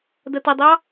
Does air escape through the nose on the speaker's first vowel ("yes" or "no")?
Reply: no